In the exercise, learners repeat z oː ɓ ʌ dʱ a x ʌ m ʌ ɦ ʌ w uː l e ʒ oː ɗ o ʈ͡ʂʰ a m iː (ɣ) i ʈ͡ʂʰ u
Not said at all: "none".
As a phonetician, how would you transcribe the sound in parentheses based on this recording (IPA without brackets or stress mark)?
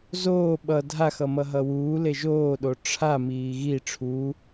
ɣ